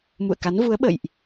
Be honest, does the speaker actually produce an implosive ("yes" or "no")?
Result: yes